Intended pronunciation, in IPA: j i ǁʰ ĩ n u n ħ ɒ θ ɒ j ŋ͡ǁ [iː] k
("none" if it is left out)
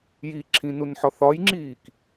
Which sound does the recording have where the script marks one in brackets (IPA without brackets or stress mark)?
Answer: iː